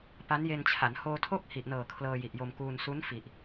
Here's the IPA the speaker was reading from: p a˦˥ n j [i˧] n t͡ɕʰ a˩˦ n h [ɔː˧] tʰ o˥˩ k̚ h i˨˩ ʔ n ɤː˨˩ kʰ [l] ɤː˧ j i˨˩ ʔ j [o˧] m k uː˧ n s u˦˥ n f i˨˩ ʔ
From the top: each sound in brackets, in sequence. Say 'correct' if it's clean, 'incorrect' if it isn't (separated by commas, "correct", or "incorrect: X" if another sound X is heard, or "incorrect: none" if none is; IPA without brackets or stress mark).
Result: incorrect: e˧, incorrect: oː˧, correct, correct